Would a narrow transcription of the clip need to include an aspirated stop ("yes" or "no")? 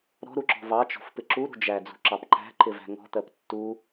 no